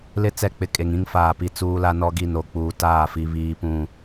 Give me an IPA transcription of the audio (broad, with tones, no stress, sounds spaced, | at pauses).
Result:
l ɪ˦ t͡s ɛ˦˨ k͡p ɪ˦ kʼ e˨ ŋ ĩ˦ ŋ f aː˨ p i˨ t͡s uː˦ l a˦ n ɔ˦ ɡ i˦˨ n o˨ k͡p uː˨ t aː˦˨ f i˨ β iː˨ p ũ˨